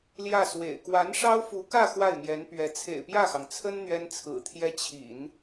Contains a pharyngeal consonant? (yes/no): no